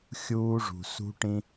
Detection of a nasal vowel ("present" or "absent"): present